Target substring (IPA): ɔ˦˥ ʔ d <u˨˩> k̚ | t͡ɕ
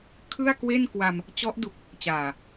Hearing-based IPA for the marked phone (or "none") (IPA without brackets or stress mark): u˨˩